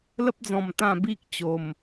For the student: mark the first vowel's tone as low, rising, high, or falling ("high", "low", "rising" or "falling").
high